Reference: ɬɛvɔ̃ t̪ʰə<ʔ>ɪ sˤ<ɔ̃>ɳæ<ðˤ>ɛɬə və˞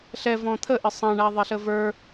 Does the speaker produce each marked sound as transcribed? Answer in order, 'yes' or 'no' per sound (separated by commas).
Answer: yes, no, yes